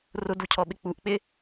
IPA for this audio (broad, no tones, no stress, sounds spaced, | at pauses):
r ʊ d u cʰ ɔ ɓ ɪ k͡p u ʔ k͡p ɪ